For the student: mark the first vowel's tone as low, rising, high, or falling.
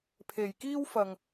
low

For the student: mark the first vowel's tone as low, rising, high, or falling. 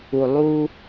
low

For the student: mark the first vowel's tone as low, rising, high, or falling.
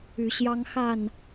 rising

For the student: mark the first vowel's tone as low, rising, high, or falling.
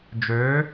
rising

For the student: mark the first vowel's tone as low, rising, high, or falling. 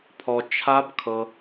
low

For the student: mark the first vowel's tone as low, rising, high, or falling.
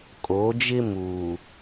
rising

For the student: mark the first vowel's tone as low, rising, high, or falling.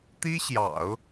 high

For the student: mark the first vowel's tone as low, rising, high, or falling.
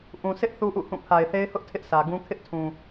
low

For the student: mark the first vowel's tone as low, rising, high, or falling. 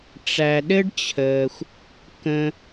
low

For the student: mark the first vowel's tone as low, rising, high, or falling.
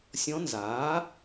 rising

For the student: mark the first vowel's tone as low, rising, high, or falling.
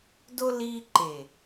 high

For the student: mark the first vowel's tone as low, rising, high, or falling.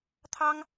high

